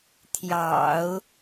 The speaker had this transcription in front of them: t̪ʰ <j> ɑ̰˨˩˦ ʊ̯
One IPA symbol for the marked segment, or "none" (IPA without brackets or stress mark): j